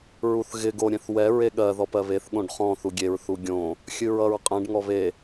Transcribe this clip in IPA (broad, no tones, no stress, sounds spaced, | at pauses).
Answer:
ɹ u θ ɣ ɪ ɡ o ɾʲ ɛ̃ θ w ɛ ɹ e ɠ ɜ ð ɔ p ɜ β e θ ɠ õ ɖ χ ɔ̃ θ u ɡʲ e ɹ θ u ɡʲ õ | xʲ ɨ ɹ ʌ ɹ qʼ ɛ̃ ɖ ŋ ɔ β e